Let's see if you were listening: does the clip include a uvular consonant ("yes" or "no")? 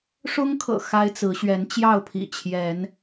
no